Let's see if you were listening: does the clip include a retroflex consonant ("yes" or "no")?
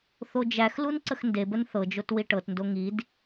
yes